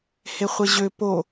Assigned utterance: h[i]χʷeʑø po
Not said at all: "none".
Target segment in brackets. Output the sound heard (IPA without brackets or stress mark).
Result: e